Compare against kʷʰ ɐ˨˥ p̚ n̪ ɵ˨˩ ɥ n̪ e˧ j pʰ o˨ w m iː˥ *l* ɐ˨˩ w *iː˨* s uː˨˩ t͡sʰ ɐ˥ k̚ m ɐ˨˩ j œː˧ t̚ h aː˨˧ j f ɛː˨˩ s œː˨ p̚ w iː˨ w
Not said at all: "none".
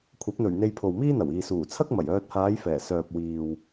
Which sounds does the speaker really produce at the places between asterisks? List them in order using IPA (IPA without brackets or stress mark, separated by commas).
n̪, iː˨